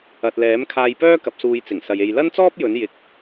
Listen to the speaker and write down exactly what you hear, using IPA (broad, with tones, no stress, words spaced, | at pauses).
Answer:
ɐ˨t̚lɛː˨˥m kʰaː˧jpœː˥ kɐ˨˥p̚suː˧jt͡sɪ˨˩ŋ sɐ˨je˧j lɐ˥nt͡sɔː˥p̚ jɵ˨˥njɪ˨˥k̚